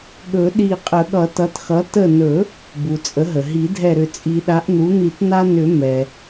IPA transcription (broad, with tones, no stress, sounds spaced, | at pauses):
ɠ ɵ˨˩˦ ɗ i˧˩ qʼ ə˨˩˦ ɠ ʌ˨˩˦ t ʌ˩˥ t x ʌ˩˥ t ə˧˩ n ɵ˨˩˦ | b u˩ t͡sʼ ə˩˥ ɦ ə˩ ɦ i˨˩˦ dʱ ɛ˧˩ ɾ ʏ˧˩ t͡sʼ i˨˩˦ ɗ a˩˥ ʔ n̪ u˩˥ n̪ i˨˩˦ t n̪ a˧ n ʏ˨˩˦ m ɛ˩